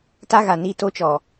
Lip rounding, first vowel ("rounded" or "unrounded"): unrounded